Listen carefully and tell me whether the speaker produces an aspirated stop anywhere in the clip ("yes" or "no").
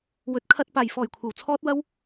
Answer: yes